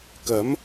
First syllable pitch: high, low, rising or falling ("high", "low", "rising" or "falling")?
rising